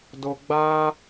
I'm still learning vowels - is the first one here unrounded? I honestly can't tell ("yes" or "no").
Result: no